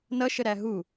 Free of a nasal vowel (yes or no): yes